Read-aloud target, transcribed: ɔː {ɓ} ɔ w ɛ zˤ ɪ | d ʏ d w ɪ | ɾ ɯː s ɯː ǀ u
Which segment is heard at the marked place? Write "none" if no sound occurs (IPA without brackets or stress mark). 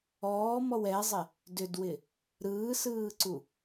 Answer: m